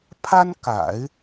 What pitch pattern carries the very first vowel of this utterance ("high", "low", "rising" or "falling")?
high